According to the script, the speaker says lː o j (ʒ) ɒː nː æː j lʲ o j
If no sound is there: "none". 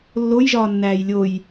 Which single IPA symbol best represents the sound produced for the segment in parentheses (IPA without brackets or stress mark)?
ʒ